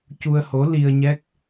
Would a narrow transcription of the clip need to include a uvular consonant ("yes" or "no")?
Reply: no